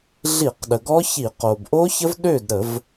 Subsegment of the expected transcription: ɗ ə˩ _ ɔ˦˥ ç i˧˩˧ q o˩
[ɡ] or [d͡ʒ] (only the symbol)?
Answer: ɡ